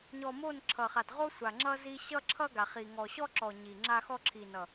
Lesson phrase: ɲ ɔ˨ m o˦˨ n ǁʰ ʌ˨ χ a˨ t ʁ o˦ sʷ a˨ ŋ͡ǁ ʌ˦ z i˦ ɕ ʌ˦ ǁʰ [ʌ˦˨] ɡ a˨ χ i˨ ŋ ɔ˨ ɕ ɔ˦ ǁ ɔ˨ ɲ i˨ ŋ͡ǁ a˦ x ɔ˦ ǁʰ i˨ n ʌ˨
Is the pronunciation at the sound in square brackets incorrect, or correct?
incorrect: ʌ˦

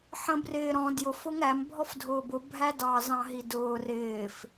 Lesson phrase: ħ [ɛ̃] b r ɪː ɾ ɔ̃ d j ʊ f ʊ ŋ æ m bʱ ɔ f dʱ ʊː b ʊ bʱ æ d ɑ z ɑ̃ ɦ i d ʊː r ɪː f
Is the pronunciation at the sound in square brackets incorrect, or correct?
incorrect: ə̃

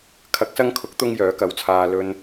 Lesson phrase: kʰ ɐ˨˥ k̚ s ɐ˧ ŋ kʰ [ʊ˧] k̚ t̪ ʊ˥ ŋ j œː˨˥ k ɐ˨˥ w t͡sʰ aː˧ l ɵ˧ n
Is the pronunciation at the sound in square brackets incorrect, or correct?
incorrect: ʊ˨˥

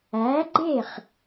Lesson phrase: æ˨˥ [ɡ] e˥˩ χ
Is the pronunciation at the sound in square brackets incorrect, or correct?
incorrect: ɡ͡ǃ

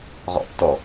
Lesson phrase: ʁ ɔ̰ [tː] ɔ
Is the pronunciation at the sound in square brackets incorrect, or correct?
correct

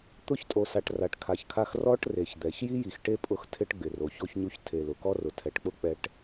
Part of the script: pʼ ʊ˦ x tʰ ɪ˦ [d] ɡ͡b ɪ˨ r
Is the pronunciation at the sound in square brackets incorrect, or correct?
incorrect: ʈ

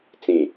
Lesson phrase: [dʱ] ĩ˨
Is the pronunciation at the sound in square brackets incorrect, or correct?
incorrect: t͡s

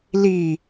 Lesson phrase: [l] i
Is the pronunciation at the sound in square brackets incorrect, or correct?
correct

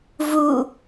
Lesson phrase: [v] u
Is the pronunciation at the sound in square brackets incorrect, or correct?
correct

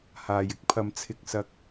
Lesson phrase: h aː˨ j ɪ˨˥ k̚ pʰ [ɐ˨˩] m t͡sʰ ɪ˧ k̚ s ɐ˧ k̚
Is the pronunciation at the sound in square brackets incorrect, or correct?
incorrect: ɐ˨˧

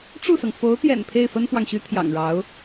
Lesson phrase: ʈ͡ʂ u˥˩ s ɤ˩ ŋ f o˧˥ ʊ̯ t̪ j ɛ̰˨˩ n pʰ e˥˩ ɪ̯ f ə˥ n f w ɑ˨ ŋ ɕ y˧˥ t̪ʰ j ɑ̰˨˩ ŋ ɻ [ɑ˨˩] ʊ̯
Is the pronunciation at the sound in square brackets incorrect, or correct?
incorrect: ɑ˧˥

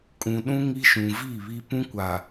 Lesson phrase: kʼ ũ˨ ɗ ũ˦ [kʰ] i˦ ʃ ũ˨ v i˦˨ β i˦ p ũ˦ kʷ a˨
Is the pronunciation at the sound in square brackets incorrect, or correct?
incorrect: ŋ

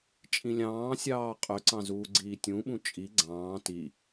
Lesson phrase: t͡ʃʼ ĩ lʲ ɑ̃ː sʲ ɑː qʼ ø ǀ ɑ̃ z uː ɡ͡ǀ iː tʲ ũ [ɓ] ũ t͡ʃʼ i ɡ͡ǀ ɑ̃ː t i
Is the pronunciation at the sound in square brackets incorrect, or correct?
correct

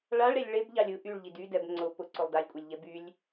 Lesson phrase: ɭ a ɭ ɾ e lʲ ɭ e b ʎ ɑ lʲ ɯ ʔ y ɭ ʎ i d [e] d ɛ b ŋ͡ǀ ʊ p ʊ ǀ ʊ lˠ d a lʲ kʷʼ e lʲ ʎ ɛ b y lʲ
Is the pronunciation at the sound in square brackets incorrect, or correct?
incorrect: y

